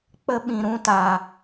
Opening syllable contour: high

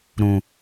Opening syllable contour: low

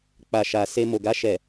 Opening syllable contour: low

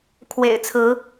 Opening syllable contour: low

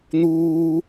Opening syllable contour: high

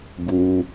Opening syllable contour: high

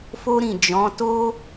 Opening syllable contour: high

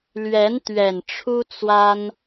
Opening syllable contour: rising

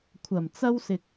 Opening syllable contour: low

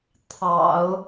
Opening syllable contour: low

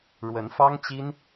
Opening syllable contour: rising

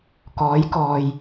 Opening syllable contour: rising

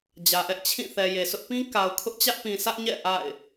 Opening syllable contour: low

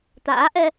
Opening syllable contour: rising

